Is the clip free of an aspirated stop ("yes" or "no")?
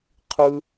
no